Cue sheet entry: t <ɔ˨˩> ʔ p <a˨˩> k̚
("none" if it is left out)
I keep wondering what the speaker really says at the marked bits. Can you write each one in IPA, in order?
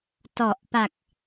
ɔ˨˩, a˨˩

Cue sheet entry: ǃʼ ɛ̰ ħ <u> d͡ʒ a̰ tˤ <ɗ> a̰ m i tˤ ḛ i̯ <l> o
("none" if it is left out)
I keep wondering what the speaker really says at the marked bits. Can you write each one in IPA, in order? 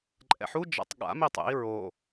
u, ɠ, ɹ

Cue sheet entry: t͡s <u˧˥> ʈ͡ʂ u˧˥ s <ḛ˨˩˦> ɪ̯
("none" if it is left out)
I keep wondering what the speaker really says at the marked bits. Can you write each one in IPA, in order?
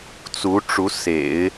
u˧˥, ḛ˨˩˦

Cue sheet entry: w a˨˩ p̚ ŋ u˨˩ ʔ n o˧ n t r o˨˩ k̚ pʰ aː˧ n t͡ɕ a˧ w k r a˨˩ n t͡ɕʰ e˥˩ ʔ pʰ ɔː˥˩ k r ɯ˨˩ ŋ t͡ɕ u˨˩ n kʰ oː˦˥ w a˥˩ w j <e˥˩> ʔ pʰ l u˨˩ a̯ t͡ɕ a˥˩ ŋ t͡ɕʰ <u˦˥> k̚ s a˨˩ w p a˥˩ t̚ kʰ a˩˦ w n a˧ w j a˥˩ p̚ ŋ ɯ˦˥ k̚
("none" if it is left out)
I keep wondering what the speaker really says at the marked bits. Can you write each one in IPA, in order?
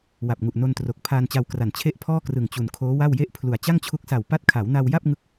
e˥˩, u˦˥

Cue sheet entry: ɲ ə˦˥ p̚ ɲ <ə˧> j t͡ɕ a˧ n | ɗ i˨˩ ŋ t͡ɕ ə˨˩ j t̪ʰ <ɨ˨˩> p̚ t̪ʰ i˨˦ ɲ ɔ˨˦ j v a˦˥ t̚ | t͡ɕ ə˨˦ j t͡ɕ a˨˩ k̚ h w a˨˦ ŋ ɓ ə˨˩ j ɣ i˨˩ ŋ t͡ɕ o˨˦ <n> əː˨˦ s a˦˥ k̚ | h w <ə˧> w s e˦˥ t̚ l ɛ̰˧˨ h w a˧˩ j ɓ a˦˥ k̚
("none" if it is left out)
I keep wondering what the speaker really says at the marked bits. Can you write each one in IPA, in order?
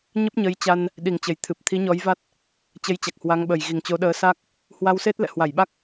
ə˨˦, ɨ˨˩, ɗ, a˧

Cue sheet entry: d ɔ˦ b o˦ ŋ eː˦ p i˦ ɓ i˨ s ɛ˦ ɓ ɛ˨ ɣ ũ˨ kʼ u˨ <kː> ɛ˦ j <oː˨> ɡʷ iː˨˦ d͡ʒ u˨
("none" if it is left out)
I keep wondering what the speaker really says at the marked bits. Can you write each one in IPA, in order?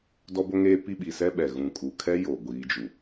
kʰ, o˨

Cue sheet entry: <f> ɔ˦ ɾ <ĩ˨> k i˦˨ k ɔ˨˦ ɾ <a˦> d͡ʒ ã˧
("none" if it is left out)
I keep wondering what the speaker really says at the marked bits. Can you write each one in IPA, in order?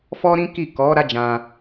f, ĩ˦, a˦

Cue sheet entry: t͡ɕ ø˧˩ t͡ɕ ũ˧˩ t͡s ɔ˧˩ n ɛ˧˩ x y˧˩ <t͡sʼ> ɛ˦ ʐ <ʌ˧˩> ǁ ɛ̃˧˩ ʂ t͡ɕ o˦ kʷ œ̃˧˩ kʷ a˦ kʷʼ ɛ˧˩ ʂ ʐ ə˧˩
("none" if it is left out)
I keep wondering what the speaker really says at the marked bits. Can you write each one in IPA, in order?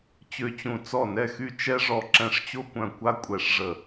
t͡ʃ, ɔ˧˩

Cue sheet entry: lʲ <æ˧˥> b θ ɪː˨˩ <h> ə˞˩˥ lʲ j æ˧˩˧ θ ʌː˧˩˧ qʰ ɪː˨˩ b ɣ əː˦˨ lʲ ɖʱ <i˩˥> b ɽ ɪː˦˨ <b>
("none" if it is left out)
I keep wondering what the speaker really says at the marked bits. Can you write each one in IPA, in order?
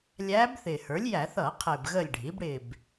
æː˧˥, h, i˩˥, b

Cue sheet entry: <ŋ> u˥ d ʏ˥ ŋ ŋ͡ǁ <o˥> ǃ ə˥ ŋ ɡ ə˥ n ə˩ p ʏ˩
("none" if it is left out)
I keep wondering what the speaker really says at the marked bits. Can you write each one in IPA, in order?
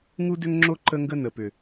ŋ, o˥

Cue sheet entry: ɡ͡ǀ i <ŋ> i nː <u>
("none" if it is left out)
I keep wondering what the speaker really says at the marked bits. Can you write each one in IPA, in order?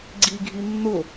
ɡʱ, ʊ

